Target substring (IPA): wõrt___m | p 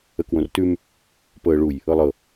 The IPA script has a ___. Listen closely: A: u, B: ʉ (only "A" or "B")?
B